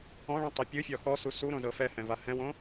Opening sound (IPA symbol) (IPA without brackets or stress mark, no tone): ɔ̃